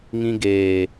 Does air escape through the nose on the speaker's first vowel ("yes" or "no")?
yes